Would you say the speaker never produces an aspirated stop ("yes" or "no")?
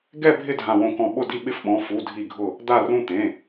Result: yes